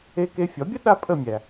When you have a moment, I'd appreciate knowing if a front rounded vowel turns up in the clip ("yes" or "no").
no